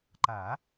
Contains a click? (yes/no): yes